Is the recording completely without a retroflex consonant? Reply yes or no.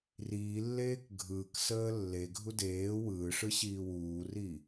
no